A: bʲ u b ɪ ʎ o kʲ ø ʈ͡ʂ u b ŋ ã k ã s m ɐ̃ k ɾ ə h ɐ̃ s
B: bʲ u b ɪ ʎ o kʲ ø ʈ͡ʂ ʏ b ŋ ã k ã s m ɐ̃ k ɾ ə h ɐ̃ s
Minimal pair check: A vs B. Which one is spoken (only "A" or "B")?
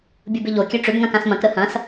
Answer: B